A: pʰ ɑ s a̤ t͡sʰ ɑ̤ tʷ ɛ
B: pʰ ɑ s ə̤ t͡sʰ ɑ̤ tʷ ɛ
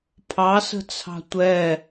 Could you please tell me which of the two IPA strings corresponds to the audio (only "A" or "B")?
B